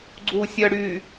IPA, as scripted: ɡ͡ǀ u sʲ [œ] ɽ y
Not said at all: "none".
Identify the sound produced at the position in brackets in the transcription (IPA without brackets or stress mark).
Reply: œ